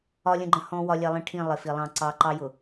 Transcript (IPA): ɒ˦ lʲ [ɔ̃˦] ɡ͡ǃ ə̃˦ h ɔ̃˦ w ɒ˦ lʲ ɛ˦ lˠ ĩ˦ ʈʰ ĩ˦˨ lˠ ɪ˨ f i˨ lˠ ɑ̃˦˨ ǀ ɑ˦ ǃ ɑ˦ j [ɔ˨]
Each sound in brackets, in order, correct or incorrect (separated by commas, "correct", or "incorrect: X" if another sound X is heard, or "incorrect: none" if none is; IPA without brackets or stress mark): incorrect: ə̃˦, incorrect: ʊ˨